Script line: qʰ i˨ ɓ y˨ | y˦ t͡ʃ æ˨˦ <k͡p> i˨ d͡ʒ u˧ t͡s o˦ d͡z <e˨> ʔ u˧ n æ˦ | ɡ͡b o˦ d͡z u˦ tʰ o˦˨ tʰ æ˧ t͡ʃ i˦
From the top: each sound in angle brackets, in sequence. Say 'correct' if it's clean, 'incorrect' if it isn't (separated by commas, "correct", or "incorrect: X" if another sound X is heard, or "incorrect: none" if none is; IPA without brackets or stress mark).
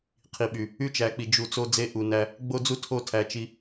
correct, incorrect: e˦